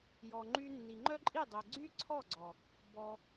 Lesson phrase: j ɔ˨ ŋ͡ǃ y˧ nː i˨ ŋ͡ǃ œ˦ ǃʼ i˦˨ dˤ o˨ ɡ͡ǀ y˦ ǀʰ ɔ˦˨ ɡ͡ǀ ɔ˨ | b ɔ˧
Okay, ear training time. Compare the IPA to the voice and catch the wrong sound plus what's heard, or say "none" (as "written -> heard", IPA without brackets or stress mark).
none